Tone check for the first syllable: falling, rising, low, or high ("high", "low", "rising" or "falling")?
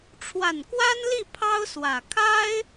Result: low